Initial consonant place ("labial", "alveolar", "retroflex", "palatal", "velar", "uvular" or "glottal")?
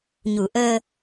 palatal